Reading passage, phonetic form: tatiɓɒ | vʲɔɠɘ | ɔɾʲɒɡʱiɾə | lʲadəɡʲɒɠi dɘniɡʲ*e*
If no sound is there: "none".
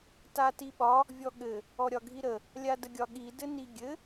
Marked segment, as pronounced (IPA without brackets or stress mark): ɘ